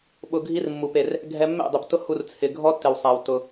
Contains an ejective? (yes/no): no